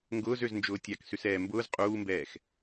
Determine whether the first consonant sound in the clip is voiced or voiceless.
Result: voiced